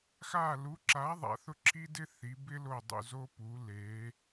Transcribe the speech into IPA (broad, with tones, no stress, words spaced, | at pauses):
xa˦˨lu˨˥ǁa˨˥ ðˤa̰˩˧θʊ˦˨ǁʰi˦dɪ˦ θi˩˧bɪ˦ lo˦˨dˤṵ˦˨zo˦ pu˩˧le˩˧